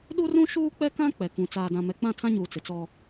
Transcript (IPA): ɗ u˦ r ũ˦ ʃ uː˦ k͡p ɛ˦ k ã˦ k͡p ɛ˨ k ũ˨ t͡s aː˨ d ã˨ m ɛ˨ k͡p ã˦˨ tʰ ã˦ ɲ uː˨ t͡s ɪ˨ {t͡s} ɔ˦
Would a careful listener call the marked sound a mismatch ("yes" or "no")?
no